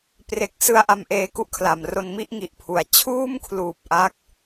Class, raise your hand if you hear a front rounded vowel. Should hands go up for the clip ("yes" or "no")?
no